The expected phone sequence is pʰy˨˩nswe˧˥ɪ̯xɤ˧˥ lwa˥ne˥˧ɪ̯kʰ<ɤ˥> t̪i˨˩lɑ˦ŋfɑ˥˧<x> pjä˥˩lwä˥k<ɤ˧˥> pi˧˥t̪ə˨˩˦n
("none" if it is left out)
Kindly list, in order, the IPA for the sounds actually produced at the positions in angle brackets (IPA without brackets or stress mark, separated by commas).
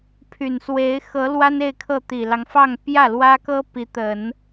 ɤ˥˩, ŋ, ɤ˥